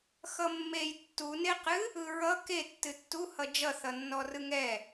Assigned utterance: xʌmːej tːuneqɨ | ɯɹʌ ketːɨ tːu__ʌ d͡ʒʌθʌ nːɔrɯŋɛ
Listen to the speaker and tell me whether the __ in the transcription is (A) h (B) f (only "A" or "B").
A